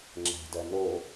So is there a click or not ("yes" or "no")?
yes